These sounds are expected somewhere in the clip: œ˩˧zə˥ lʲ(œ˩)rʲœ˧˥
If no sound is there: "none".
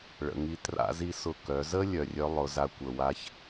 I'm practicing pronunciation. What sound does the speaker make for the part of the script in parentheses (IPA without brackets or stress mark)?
œ˩